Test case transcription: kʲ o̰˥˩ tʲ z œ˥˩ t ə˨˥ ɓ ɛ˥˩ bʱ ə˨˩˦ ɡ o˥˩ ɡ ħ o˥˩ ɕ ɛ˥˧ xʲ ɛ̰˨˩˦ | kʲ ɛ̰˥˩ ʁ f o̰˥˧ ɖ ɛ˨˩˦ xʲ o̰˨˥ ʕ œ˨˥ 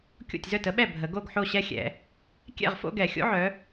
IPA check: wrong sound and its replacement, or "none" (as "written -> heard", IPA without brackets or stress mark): ɖ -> ɡ